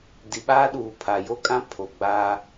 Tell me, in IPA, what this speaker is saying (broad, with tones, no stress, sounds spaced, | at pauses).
d i˨ ɓ aː˦ ɗ uː˨ pʰ a˨ j o˦ kʼ ã˦ pʰ o˨ ɡ͡b aː˦